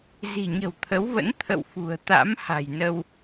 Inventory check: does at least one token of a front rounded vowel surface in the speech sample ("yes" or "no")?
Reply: no